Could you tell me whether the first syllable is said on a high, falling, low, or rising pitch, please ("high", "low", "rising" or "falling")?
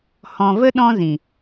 low